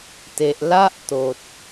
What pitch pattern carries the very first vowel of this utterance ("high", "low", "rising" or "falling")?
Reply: low